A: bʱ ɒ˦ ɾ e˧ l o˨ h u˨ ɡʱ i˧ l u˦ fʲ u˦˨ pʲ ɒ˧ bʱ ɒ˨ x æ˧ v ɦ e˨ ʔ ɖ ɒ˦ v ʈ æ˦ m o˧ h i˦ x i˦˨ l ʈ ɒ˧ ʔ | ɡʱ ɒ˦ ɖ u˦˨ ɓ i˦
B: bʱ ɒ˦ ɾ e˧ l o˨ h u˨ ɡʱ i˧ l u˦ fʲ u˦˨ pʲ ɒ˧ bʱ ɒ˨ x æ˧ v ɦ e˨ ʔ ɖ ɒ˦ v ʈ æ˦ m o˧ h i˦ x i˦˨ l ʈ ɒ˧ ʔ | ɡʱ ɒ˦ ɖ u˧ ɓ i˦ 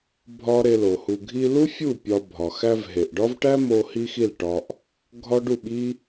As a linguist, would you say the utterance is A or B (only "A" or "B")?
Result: A